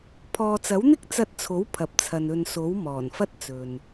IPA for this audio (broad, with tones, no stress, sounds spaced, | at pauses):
pʰ ɔː˨ t͡s ɐ˨˥ w n̪ ɪ˥ k̚ t͡s ɐ˧ t̚ t͡sʰ o˨˥ w pʰ ɐ˨ p̚ t͡sʰ ɐ˨ n ɵ˨ n s o˨˥ w m ɔː˨˩ n f ɐ˥ t̚ t͡s ɵ˨ n